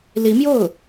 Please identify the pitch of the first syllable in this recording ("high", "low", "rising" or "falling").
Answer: rising